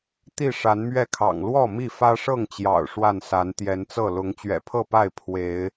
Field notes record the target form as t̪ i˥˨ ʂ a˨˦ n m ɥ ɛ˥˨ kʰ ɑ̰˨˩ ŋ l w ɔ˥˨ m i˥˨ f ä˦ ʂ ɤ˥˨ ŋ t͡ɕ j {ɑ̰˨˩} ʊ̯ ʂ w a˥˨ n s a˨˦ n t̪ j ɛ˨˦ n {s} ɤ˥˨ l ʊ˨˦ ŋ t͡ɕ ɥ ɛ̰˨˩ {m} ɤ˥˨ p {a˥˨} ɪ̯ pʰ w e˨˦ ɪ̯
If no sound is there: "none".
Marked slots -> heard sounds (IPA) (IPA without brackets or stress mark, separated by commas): ɑ̰˨˩, t͡s, pʰ, a˥˨